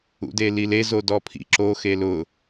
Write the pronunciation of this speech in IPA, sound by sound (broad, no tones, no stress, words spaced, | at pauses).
ṵdelilez odɔpʰḭ ǁo xelʊ